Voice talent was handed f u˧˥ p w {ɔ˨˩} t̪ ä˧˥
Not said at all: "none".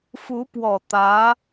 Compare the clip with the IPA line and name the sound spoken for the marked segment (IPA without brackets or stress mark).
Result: ɔ˨˩